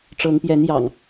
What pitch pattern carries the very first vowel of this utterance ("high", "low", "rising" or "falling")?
rising